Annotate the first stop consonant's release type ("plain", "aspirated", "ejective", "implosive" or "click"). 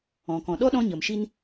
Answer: plain